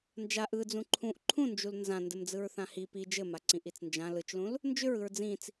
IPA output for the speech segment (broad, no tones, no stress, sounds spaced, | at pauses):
n d͡ʒ a ʔ ɯ d͡z ũ ǃʰ ũ ʔ ǃʰ ũ n d͡ʒ u l n z ã n d ɘ m d͡z ɯ ɹ θ ã h i p i d͡ʒ ɘ m a ǀ ĩ ʔ i t͡s n d͡ʒ ã l ɯ t͡ʃ l ũ l | n d͡ʒ ʏ ɹ ɯ ɹ d͡z ĩ t͡s